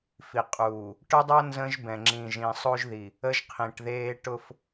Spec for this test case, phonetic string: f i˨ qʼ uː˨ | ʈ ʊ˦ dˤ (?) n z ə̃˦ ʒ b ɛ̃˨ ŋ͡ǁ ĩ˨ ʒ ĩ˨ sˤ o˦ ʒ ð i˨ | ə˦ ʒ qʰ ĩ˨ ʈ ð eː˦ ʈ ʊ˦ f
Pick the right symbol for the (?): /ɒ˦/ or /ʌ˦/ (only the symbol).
ʌ˦